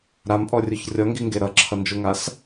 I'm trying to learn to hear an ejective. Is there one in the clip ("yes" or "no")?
yes